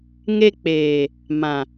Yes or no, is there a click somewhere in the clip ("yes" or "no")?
no